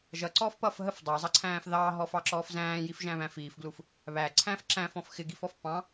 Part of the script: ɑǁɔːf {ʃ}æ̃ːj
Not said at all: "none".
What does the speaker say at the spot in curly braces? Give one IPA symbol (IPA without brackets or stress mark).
z